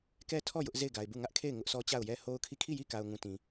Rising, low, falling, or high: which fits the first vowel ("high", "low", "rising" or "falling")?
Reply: falling